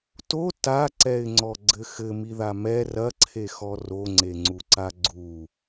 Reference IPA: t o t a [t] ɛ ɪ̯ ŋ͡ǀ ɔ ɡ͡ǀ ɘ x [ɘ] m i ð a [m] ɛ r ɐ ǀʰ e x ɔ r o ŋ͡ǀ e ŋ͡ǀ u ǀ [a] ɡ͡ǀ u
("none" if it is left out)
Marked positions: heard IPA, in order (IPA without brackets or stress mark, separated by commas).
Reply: ǀ, ɘ, m, a